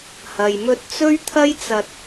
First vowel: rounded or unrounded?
unrounded